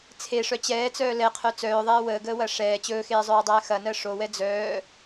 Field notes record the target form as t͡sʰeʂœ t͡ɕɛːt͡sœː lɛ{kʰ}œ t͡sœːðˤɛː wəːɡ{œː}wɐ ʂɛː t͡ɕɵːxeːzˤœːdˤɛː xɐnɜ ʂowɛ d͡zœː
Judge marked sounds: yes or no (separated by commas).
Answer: no, no